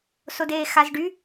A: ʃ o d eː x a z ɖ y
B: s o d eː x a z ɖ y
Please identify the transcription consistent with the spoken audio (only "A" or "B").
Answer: B